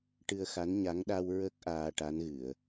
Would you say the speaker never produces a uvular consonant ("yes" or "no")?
yes